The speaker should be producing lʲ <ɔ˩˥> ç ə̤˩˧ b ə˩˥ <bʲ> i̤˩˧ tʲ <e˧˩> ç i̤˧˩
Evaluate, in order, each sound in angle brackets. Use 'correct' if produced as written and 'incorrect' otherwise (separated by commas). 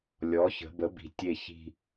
correct, incorrect, correct